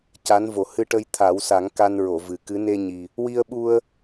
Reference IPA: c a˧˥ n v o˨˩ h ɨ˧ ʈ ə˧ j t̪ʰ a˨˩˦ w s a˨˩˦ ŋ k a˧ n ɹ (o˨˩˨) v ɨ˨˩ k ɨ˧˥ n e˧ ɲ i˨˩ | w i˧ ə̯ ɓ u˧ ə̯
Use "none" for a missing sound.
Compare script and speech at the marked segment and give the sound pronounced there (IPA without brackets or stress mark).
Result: o˨˩˨